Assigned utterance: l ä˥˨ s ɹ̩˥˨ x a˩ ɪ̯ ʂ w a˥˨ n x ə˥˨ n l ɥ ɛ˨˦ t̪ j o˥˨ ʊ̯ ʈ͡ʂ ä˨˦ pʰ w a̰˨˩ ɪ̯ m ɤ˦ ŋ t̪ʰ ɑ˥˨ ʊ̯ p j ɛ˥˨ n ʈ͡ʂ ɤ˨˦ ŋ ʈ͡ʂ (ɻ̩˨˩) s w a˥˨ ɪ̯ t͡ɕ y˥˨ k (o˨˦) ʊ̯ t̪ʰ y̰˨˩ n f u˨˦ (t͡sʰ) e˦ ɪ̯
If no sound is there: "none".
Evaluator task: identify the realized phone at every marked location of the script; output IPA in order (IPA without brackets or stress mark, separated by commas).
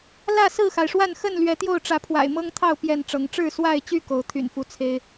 ɻ̩˥˨, o˨˦, t͡sʰ